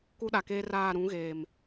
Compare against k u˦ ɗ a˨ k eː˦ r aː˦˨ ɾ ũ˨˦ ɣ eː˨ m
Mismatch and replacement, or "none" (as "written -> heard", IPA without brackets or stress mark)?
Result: none